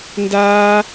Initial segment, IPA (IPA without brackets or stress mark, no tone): n